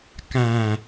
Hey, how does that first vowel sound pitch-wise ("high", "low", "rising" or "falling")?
low